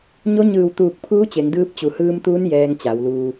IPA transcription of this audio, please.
ɲo˧˥ɲɯː˧˩wt̪uː˧˩k̚pʰuː˧˥ t͡ɕe˩˧ŋdɯː˧˥p̚ t͡ɕu˩˧hɯː˧mt̪uː˧˥n jɛː˧ŋt͡ɕa˩˧wluː˧

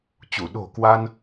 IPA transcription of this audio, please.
t͡ɕu˧˩ ɗo̤˨˩ kwa˧n

